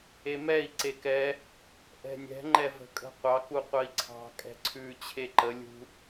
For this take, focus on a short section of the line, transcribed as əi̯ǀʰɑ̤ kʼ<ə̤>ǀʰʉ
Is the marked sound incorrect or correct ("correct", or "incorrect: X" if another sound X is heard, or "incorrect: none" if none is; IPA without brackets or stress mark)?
incorrect: ɛ̤